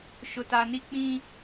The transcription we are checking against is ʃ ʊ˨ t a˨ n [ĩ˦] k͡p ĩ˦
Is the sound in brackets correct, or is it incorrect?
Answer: incorrect